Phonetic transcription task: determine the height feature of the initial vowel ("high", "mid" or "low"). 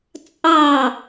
low